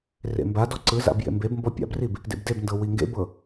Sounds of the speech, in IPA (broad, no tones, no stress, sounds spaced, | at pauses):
r ḛ m b a d ɔ ǀ ɯ z a̰ b j ḛ m b e b m b ɔ pʲ a̰ b r i b | d ḛ b d e b n d ɤ w i ŋ ɡ ḛ b ɤ